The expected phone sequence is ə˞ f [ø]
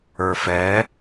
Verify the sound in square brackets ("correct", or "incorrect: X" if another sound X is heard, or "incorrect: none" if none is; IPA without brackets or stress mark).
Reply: incorrect: ɛ